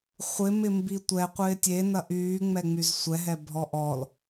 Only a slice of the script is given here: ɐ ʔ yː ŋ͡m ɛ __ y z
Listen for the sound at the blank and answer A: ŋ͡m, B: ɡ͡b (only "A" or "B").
A